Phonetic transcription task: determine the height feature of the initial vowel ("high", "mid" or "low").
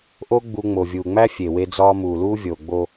mid